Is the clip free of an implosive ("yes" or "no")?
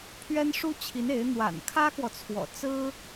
yes